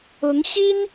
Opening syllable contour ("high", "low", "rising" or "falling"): rising